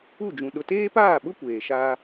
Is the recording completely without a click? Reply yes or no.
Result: yes